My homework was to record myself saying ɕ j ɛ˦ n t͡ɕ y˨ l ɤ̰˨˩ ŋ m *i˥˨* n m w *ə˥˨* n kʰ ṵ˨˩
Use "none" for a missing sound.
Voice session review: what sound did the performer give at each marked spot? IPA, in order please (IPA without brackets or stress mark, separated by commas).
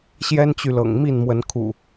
i˥˨, ə˨˦